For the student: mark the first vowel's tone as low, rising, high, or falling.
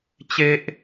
high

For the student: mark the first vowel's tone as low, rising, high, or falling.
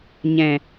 low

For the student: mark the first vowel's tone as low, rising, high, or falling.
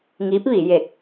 rising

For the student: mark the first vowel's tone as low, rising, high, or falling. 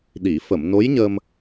low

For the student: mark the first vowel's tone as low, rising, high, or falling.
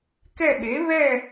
falling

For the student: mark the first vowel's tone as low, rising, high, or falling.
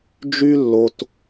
high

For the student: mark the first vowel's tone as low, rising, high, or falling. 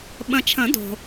low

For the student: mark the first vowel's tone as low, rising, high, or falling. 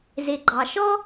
low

